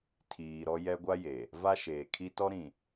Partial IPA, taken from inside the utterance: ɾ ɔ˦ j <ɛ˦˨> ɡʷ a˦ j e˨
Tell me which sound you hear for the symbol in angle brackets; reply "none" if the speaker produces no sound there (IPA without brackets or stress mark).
ɛ˦